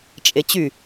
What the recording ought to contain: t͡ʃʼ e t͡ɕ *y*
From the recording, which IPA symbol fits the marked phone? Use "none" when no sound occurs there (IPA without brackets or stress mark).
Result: y